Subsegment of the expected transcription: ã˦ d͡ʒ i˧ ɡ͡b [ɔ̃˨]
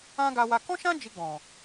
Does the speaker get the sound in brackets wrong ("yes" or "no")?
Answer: no